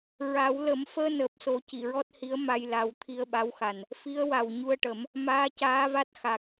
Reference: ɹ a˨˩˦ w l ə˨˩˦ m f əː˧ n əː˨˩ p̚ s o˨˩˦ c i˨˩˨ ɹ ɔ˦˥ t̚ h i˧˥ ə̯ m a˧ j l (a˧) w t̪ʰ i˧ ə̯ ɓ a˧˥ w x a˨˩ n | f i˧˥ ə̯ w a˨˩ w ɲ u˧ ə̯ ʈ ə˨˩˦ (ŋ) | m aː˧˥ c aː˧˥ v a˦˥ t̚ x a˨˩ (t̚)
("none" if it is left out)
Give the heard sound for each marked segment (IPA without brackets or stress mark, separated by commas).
a˨˩˦, m, k̚